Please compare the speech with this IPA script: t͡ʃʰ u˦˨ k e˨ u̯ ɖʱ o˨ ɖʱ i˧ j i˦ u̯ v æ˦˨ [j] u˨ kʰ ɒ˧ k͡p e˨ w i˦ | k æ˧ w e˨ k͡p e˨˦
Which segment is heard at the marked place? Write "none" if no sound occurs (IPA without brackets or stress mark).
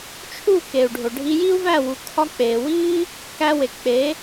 w